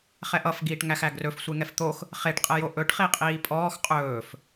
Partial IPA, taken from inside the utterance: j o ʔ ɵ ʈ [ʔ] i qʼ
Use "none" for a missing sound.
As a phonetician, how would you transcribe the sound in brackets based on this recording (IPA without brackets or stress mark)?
χ